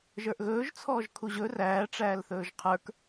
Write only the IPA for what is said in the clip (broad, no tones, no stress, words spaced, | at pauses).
ʒə˞ʔɣɵːʒt͡sʰɔːʒ kʰuʑɵ ræːʈ͡ʂæːl θɵːʒqʰə˞k